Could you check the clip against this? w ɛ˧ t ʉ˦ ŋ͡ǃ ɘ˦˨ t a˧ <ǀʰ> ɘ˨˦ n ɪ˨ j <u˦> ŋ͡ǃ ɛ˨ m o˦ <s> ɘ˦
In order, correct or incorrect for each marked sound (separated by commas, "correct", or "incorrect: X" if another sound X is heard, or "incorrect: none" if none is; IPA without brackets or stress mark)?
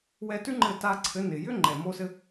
correct, incorrect: ʏ˦, correct